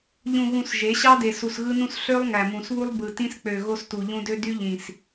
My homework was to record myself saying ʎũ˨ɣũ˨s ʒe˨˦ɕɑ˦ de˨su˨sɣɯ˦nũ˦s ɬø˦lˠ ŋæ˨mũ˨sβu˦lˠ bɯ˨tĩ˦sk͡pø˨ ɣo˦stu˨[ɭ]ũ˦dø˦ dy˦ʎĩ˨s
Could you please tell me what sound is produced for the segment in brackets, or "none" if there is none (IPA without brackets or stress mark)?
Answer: ʎ